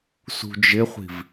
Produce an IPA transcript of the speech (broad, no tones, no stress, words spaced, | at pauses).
sṳd͡ʒɪχʷi̤v